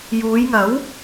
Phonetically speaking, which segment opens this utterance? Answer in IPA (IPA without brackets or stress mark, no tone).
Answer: j